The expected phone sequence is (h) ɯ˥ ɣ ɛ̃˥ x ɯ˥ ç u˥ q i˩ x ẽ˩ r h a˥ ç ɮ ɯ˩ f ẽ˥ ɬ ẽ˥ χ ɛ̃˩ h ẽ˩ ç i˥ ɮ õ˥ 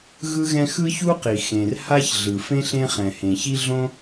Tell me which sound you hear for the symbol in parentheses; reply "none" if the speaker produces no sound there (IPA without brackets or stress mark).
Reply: ɣ